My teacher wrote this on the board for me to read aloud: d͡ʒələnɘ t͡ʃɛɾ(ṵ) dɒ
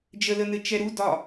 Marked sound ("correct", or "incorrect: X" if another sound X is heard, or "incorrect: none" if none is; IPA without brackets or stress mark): incorrect: u